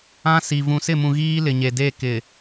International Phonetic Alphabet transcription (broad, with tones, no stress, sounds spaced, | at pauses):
ã˦ s i˨ v ũ˨ s ɪ˦˨ m ũ˨ ɣ iː˦ l ɪ˨ ɲ e˨ d e˦˨ k ɪ˨